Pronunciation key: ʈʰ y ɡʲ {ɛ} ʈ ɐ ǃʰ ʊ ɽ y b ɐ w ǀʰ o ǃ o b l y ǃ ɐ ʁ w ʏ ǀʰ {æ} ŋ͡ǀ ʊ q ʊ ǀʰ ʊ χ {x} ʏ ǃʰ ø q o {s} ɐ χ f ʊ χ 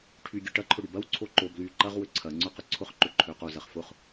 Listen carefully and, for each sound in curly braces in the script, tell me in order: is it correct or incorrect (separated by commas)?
incorrect, incorrect, incorrect, incorrect